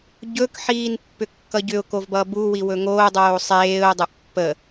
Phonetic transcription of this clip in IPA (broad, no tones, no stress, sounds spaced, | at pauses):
ɟ ɵ k ħ iː n pː ʏ kː ʌ ɟ ʏ ʊ̯ k o v b ʌ b u w i w ɵ ŋ oː dˤ oː sˤ eː ʊ̯ dˤ ɵ ʔ pː ə